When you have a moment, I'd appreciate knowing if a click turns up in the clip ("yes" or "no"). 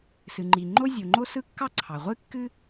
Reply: yes